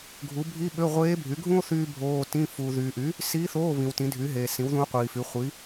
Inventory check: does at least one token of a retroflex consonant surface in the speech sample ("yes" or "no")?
no